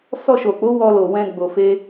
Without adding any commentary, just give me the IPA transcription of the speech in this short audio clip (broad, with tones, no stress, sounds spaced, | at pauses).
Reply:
s ɔ˧ ʃ o˨ k͡p o˨˦ w ɔ˧ l o˨ w ɛ̃˧ ɡ͡b o˧ f e˦